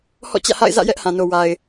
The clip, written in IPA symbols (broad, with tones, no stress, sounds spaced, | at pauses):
h ɔ̰˦˨ t͡ɕ ä̰˦˨ h a̰˦˨ ɪ̯ z ä̰˦˨ j ɛ˦ ʔ h ã˨ n o˨ w a˨ ɪ̯